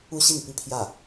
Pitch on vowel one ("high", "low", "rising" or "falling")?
falling